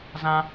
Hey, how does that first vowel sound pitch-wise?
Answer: high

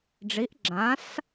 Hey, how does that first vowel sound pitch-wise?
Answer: rising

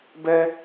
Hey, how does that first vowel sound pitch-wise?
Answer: high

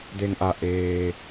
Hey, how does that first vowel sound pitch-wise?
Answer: low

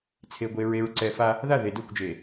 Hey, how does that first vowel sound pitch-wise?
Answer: low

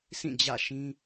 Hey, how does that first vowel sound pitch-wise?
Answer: falling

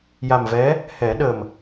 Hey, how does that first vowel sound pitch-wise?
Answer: low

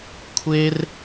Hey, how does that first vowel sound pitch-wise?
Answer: high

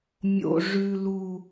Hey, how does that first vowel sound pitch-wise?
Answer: low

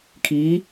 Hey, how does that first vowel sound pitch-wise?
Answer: rising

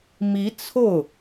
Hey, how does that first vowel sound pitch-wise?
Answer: rising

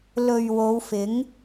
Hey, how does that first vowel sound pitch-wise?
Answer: low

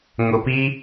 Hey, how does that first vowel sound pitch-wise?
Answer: low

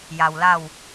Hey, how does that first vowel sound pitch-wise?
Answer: low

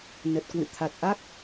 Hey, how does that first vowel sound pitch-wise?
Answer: low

